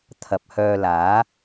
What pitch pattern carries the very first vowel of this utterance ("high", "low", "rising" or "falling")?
low